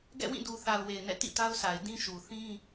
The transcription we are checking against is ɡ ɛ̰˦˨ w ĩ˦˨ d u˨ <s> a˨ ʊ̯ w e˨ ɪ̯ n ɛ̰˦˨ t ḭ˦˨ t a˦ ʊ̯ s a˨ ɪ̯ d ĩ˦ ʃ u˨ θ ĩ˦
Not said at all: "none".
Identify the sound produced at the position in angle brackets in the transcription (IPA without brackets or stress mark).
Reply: θ